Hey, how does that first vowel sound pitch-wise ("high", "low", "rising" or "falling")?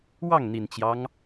falling